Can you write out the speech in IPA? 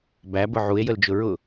b æ b ʊ ʕ u e̯ j ə l d͡ʒ ʊ ɹ ʊ

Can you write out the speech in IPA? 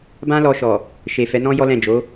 b ã˦ l ɔ˧ ʃ ɔ˨ | ʃ e˨ f ɛ˨˦ n ɔ̃˦ j ɔ˦ l ɛ̃˦˨ d͡ʒ o˨˦

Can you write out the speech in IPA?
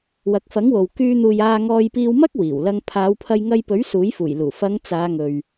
w ɐ˨˥ k̚ f ɐ˨˥ ŋ w o˨ w k yː˧ n̪ uː˨ j aː˧ ŋ ɔː˧ j p iː˧ w m ɐ˥ k̚ w iː˨˩ w l ɐ˧ ŋ pʰ aː˨˧ w pʰ ɐ˧ j ŋ ɐ˧ j p ɵ˨˥ ɥ s uː˨˥ j f uː˨˩ j l uː˨˩ f ɐ˨˧ ŋ t͡s aː˨˧ ŋ ɵ˨ ɥ

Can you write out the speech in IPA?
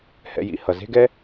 h ɛ̰˧ j ḭ˧ h ʌ˩ z e̤˥ ɡ ɛ˥

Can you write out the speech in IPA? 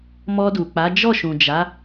m ɔ˧ d u˨ k͡p a˨˦ d͡ʒ ɔ˦˨ ʃ ũ˨ d͡ʒ a˨˦

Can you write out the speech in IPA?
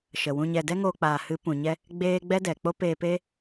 ʃ ə˨ w ũ˧ ɲ ɛ˧ d ɛ˦ ŋ oː˧ k͡p aː˨ h ɨ˨˦ p ũ˨ ɲ ɛ˦ | ɡ͡b eː˦ ɡ͡b ɛ˦ d ɛ˨ k͡p o˦ p eː˧ p e˦

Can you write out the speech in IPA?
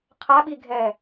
qʰ a ɓ i ɡʱ ɛ

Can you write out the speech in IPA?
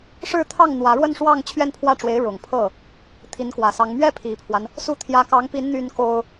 ʂ ɻ̩˥˧ t̪ʰ ɑ˥˩ ŋ n̪ w ä˧˥ ɻ w ə˥˧ n ʂ w ɑ˥˧ ŋ t͡ɕʰ ɥ ɛ˥˧ n pʰ w ä˥˩ ʈ͡ʂ w e˧˥ ɪ̯ ɻ ʊ˨˩ ŋ pʰ ɤ˥˩ | t̪ʰ i˧˥ n k w ä˨˩ s ɑ˧˥ ŋ m ɥ ɛ˥ pʰ i˨˩ pʰ w a˦ n | s u˥˩ t̪ʰ j ä˧˥ k ɑ˧˥ ŋ p i˧˥ n n̪ y˥ n k o˥ ʊ̯

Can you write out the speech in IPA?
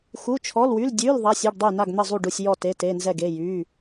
x u˧˥˧ t͡ʃʰ ɔ˧˥˧ l w y˧˥˧ l dʲ ʉ˧˥˧ l ðˤ a˧˥˧ sʲ e˧˥˧ ɖ dˤ y˥˨ n a˥˨ ɡ n̪ ə˥˨ zˤ u˥˨ ɖ u˥˨ sʲ j ɔ˥˨ t e˧˥˧ t e˧˥˧ n z ɛ˥˨ ɡ e˧˥˧ j y˧˥˧

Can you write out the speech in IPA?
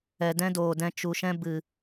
ɛ˨ d ɛ̃˦ d oː˨ d ɛ̃˧ t͡ʃ u˨ ʃ ɛ̃˧ b ɨ˨

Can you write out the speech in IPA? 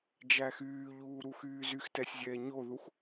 d͡ʒ æ x yː ʎ uː ɾ u x yː z y x t ɛ sʲ zʲ ɛː ɲ o ð u x

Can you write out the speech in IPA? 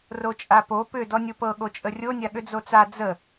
r o t͡ʃʼ a p o p ʏ d ɔ nʲ o p ɤ ɠ o t͡ʃʼ ə rʲ o nʲ a ɠ ʏ d͡z o t͡s a d͡z ə

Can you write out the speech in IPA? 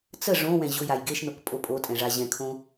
t͡s ə ʐ õ w ɛ̃ ʑ ʊ j a j ɡ e ʃ n o k pʼ o pʼ o tʼ ɛ̃ ʐ a ʑ ɛ̃ kʰ õ

